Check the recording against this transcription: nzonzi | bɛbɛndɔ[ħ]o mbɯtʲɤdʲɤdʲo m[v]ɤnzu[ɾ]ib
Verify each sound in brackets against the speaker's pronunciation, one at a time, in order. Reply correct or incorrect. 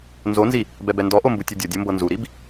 incorrect: ʔ, incorrect: b, correct

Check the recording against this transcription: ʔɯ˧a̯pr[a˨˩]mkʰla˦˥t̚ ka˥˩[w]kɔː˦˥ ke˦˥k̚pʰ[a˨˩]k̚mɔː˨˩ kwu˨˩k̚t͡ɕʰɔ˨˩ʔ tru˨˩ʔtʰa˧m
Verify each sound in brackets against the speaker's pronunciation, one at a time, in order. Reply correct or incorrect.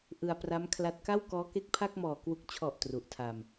incorrect: a˦˥, correct, incorrect: a˥˩

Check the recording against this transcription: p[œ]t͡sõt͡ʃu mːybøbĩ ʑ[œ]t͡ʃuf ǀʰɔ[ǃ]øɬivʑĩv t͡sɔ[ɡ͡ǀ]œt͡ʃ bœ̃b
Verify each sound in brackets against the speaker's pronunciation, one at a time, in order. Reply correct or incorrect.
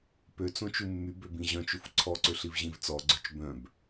incorrect: ø, incorrect: œ̃, incorrect: ǀ, correct

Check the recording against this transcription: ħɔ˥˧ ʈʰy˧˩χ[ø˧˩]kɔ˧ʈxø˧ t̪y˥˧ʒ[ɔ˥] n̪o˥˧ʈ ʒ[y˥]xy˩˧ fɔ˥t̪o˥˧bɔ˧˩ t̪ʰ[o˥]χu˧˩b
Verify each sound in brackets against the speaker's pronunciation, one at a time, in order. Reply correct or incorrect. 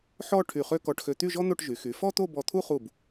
incorrect: ø˥, correct, incorrect: y˩˧, incorrect: u˥

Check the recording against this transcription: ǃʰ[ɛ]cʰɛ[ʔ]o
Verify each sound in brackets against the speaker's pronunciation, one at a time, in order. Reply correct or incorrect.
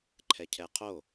correct, incorrect: qʰ

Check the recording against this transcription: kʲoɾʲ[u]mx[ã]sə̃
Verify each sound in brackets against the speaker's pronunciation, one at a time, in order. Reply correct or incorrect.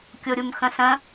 correct, incorrect: ə̃

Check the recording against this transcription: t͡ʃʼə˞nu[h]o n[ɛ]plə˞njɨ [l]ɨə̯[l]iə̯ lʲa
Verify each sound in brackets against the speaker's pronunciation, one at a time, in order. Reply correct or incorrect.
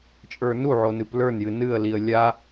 incorrect: ʕ, incorrect: ɨ, incorrect: n, correct

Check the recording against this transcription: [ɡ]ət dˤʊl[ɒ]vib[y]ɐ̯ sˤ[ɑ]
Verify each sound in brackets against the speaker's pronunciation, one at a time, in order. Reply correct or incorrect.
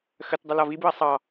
incorrect: x, correct, incorrect: u, correct

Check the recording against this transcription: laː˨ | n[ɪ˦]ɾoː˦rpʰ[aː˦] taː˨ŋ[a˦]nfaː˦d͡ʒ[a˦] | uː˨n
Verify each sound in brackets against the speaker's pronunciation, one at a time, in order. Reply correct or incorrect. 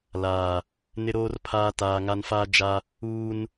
correct, correct, correct, correct

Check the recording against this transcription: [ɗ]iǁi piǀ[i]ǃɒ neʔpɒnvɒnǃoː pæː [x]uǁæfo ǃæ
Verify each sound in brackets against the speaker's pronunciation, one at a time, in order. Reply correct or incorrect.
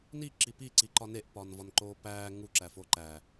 incorrect: n, correct, incorrect: ŋ

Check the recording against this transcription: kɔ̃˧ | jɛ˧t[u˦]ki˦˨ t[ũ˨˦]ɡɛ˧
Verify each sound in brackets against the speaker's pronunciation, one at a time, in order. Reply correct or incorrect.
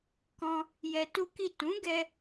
correct, correct

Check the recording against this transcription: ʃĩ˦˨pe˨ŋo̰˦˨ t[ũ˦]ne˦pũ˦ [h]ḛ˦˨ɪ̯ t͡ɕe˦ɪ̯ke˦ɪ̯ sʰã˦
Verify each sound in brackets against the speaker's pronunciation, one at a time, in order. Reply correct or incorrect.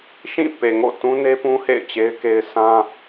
correct, correct

